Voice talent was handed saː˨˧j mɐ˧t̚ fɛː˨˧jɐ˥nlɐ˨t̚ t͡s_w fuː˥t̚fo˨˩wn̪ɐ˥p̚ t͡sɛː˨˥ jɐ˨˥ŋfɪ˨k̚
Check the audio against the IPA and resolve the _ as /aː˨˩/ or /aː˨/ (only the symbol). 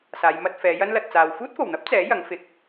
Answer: aː˨